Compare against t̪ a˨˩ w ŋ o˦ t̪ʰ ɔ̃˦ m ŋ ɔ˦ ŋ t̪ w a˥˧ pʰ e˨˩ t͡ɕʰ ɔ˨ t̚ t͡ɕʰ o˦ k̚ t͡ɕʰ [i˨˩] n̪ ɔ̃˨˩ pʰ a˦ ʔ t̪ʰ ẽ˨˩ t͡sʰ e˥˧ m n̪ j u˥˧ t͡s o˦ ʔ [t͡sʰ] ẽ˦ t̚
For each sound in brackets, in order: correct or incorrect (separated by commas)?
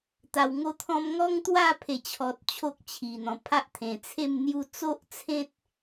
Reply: correct, correct